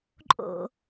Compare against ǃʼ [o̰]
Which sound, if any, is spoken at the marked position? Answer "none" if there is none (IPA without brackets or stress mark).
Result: o̰